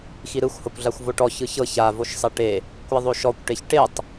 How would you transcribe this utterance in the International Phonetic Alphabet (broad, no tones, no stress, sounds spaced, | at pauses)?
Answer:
x i ɾ ɯ xʷ h ɤ kʷ ɮ a xʷ v o ʈ ɔ ç ɯ ç ɤ ç a v o ʃ sˤ ɛ ʈ e | kʷ ɛ ðˤ o ʃ ɔ kʷ ʈ e ç ʈ e tˤ